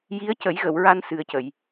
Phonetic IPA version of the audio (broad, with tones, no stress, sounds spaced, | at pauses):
j i˧˥ ə̯ c ə˨˩˦ j ɣ ə˨˩˨ w ɹ a˧ n s ɨ˨˩ ə̯ c ə˨˩˨ j